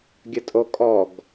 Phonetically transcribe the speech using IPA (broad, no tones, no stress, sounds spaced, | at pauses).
ɡʲ ə tʼ o kʼ ɔ ɡ